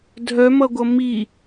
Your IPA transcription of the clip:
dʱ œ m ʌ ɡʷ ʌ m i

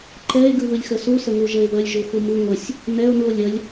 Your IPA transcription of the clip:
ǃ ɛ e̯ ɡ ɯ β ɯ lʲ x ə s u s ə ŋ u ʒ ə e̯ β ə lʲ ʒ u x u m ɯ ŋʷ ə sʲ | n ɛ o̯ n u o̯ lʲ ə lʲ

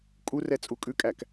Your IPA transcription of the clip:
kʼ u r ɛ t͡sʼ u kʼ ʉ kʼ æ k

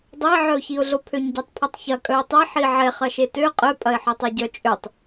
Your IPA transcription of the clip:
dˤ o ɪ̯ ʕ œ ʊ̯ ç i ʊ̯ ɮ o pʰ ø ɲ ɟ ɛ tˤ pʰ ɐ tˤ ç ɐ kʼ œ ɪ̯ tˤ ɛ ħ i ʕ ɛ χ ɐ ʃ e t ø qʼ œ pʼ ɐ ɪ̯ ħ œ tˤ e ɟ œ t͡ʃʼ ø tˤ

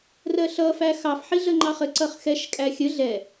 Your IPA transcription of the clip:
r ɜ ɬ ʌ f æ x ɑ f ħ i ɮ ə ŋ͡ǃ ɑ χ ə ǀ ʌ χ x ɛ ʃ kʼ æ xʲ ə ɮ ɛ

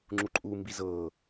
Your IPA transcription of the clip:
ŋ͡ǁ u ǃʼ u m b i z ɤ

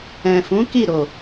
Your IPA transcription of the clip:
ɛ̃˨ f ũ˨˦ k i˦˨ ɾ o˨

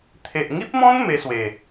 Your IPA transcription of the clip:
t̪ʰ e˨ ʔ ŋ i˦ p̚ m ɔ̃˦ n m e˧ s w e˨˩

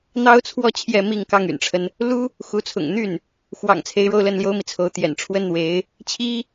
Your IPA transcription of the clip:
n̪ ɑ˥ ʊ̯ t͡sʰ w ɔ˥˧ t͡ɕʰ j ɛ˥˧ m i˥˧ ŋ k ɑ˥˩ ŋ y̰˨˩ n ʈ͡ʂʰ ə˦ n | l u˥ | x u˧˥ t͡sʰ ʊ̰˨˩ ŋ n̪ y˥˩ n | x w ɑ̰˨˩ ŋ t͡sʰ e˧˥ ɪ̯ ɻ o˥˧ ʊ̯ l ə˥˩ n l j o˥ ʊ̯ m i˨ t͡sʰ o˧˥ ʊ̯ t̪ j ɛ̰˨˩ n ʈ͡ʂʰ w ə˥ n n̪ w e˧˥ ɪ̯ | t͡ɕʰ i˥

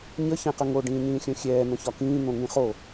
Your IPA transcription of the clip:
ɲ ə ç ɛ̃ q ə ŋ o ɖ ĩː ɲ ĩː xʲ õ xʲ ɛː n̪ ə̃ ç ɒ k ĩː n̪ õ ŋ ĩ χ o

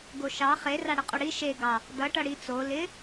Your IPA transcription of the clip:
ɡ o ʃ ɑ χ e r a ɽ ɪ qʼ o ɽ i ʃ e ɡ ɑ | d ʌ ʈ ʌ ɽ i t͡s o l ɪ

